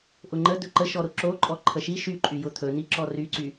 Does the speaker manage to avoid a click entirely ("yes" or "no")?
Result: no